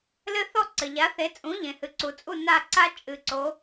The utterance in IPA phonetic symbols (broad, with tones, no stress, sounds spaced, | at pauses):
l ɘ˥ θ ɔ˥˩ ǀ ɘ˩ ʎ a˩˥ θ e˩˥ t͡sʼ ũ˩˥ ʎ ẽ˩ h ɨ˩ ǀ u˩ t͡sʼ u˥˩ n a˥˩ ǀ a˥ t͡ʃʼ ɨ˩˥ ǀ o˩˥